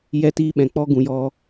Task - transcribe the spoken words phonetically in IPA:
j ɛ˧ t iː˧ ɓ ɛ̃˨ k͡p ɔ˦ ɡ ũ˧ j ɔ˧

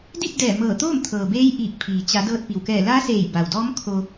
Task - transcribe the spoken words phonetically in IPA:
d i˥˨ p̚ d ɛː˧˩ m ɤː˧˩ t̪ oː˥˨ m t̪ʰ ɤː˩ b eː˧˥ j ʔ iː˧˩ k̚ pʰ iː˩ t͡ɕ a˩˧ d ɤː˧ t̚ p i˩ w k ɛː˧˩ l a˧˥ s eː˧˩ j b a˩ w d ɔː˧˥ m kʰ o˧

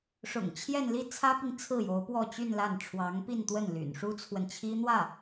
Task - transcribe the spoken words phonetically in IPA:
ʂ ʊ̰˨˩ ŋ t͡ɕʰ j ɛ˥˧ n l i˥˩ t͡sʰ ä˥ p i˨ ŋ t͡sʰ ɹ̩˥˩ j o˧˥ ʊ̯ p w ɔ˥˧ t͡ɕ y˥˧ n l a˥˩ n ʈ͡ʂʰ w ɑ˧˥ ŋ p i˥˧ n t̪ w ə˥˩ n l y̰˨˩ n ʂ u˥ t͡sʰ w ə˨ n t͡ɕʰ i˥ n̪ w ä˥˩

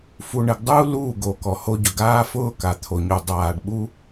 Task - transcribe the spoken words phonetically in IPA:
f u˨ ɳ ɪ˨ ɡ dˤ uː˦ l uː˦˨ ɡ o˨ k ɔ˨ h o˦ ɟ ʊ˨ ɡ aː˦ f ʊː˦ k a˨ t̪ʰ o˨ ɲ u˨ dˤ aː˨ ɖ ɓ u˦

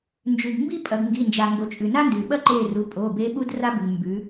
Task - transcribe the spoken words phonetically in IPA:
n d͡ʒ ʉ˩ ɡ m b i˥ pʼ ɐ˩˧ ɡ ŋ ɡ i˩˧˩ n d͡ʒ a˩ ŋ ɡ o˩˧ t͡ʃʼ ʉ˩ n a˥ n d ʉ˩ ɓ ɐ˥ ǃ e˦˨ r u˩˧˩ pʼ o˩˧˩ b e˧˥ ɓ u˥ d r a˥ b ʉ˩ ŋ m b ʉ˩˧

